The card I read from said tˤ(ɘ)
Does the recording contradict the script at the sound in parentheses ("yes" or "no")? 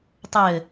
no